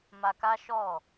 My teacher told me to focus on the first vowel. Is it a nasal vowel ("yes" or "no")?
no